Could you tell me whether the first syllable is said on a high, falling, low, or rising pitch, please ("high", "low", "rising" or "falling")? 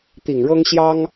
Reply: low